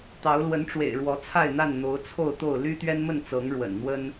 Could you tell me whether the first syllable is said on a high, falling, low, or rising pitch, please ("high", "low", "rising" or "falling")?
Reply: rising